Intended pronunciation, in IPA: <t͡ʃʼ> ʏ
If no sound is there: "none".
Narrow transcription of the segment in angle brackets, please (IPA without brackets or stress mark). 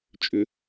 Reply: t͡ʃʼ